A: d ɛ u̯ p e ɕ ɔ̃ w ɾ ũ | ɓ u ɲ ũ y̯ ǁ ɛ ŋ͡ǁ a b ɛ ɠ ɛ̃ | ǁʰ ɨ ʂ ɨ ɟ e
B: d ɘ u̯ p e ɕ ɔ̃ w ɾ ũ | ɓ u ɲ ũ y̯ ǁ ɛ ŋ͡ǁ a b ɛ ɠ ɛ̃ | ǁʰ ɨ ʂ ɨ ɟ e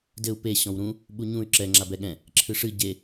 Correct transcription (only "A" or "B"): B